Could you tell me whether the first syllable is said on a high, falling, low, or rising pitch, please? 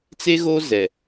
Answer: high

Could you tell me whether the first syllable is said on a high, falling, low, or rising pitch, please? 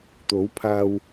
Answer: rising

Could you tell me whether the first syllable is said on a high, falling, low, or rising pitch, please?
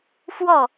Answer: falling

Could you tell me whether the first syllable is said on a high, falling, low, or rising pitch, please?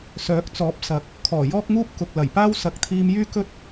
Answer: rising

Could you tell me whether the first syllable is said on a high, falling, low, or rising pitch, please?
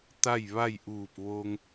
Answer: falling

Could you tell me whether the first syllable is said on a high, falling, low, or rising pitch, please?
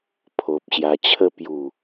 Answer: low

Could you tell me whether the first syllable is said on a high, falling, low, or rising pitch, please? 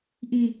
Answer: low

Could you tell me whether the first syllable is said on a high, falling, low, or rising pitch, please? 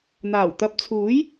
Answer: low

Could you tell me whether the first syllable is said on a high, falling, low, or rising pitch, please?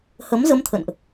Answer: rising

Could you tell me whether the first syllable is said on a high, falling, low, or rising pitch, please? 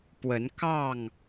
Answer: rising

